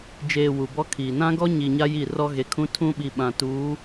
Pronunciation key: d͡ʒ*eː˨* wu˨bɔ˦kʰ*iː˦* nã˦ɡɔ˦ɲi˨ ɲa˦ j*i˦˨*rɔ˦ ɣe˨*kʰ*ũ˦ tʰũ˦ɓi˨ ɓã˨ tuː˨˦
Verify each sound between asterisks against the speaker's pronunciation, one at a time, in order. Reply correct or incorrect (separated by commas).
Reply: correct, incorrect, correct, correct